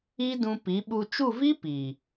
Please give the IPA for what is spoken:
i˦ d ũ˧ p i˨˦ ɓ u˧ t͡ʃ u˦˨ v i˦ p i˨

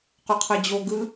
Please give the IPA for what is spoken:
q u qʰ ɯ d͡ʑ o ɡ ɯ

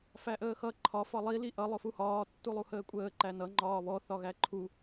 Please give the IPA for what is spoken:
f æ ʔ əː x ʌ ǃʰ ɒ f ɒ lˠ i l i ʔ ʌ lˠ ʊ f u h ɒː tː u lˠ u h əː kʷʼ əː ǃ æ n ʌ ŋ͡ǃ ɒː β ɔ θ ɒ ɣ æ ǃʰ u

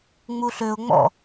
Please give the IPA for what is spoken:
ŋ͡m u ɬ ø ʊ̯ ŋ͡m ɔ̰

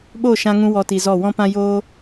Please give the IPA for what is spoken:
ɓ oː˦˨ ʃ ã˧ ŋ ũ˧ w ɔ˧ t i˨ z ɔ˦˨ w ɔ̃˦ p ã˦ j oː˦

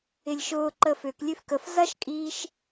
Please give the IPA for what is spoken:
ɪ lʲ ʃ ʊː ǃ əː f ʏ k lʲ ø f k ə f z ɐ ʃ kʼ iː ʃ

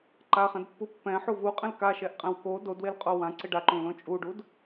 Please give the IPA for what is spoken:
ǃ a χ ɛ̃ d pː u pː ɛ̃ ħ u v u qʼ ɛ̃ l k a ʃ ɛ ʔ qʼ ɛ̃ w k o d o d w e l qʼ o w ã ǀ ɪ ɖ a ǃ ũ l õ t͡ʃʼ u ɖ u d

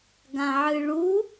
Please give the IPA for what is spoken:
ɡ ã ʕ ɨ ɭ u

